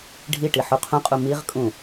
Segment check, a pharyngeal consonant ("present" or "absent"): present